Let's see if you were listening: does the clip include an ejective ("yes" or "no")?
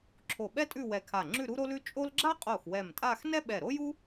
yes